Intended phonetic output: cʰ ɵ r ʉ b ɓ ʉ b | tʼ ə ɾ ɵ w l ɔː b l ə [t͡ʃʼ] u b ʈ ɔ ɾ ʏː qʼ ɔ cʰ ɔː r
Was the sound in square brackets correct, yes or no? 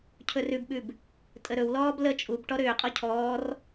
yes